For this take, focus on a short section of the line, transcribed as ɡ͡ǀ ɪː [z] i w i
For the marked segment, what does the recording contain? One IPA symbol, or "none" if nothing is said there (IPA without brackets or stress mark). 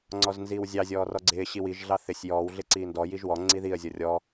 ɕ